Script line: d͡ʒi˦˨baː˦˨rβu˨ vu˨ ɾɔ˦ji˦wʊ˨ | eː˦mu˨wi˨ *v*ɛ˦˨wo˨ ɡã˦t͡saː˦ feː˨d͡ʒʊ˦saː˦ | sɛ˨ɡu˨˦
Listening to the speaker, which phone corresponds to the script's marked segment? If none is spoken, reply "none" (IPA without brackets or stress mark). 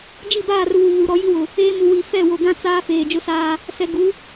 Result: f